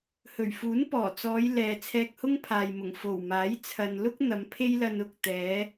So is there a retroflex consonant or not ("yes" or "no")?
no